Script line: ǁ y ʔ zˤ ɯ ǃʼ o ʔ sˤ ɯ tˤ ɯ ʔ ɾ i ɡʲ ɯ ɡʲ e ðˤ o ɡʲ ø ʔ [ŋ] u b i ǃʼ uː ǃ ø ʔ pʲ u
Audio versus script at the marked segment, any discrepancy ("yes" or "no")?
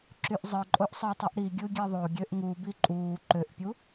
no